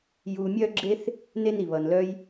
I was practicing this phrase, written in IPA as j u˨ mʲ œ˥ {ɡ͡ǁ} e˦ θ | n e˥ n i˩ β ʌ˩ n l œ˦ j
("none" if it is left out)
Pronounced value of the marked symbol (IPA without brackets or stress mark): ɡ͡ǁ